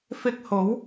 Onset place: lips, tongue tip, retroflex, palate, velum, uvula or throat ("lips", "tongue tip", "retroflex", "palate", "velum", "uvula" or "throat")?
lips